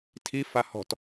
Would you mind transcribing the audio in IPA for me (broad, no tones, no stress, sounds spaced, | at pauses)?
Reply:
tʰ i f a h ɔ̤ t